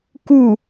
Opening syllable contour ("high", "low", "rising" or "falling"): falling